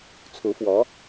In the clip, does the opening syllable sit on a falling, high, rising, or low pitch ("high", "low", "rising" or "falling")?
rising